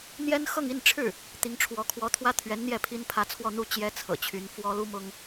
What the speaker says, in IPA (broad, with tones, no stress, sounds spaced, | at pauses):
n̪ j ɛ˥ n x ɤ˥˧ ŋ i˥˧ n ʈ͡ʂʰ ɻ̩˥˩ | t̪ i˧˥ ŋ ʈ͡ʂʰ w ɔ˧˥ kʰ w ɔ˧˥ t̪ʰ w ä˥ t̪ʰ ɥ ɛ˧˥ n n̪ j ɛ˥˩ pʰ i˥ n pʰ ä˧˥ t͡sʰ w ɔ˥˧ n̪ u˥˩ t͡ɕ j ɛ˥ t͡sʰ ɤ̰˨˩ t͡ɕʰ y˧˥ n f w ɔ˥ l u˥ m ʊ˥ ŋ